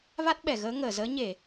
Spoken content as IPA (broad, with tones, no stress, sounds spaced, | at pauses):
v a˦˥ t̚ ɓ ɛ˧˩ ɣ əː˨˦ ŋ əː˧˩ z əː˨˦ ɲ e˧˩˨